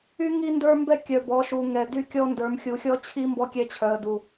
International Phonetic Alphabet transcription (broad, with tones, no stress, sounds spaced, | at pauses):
y˦ ŋ i˦ n d ə˞˦ m b ɛ˦ kʲ œ˨ b ɔ˨˦ ʃ u˨ ŋ ɛ˨ d y˦ kʲ ɔ˦ n d ə˞˨ m xʲ u˨ xʲ ɔ˦ t͡ɕʰ i˦ m b ɔ˦ kʲ ɛ˦ t͡ɕʰ œ˨ ə̯ d u˨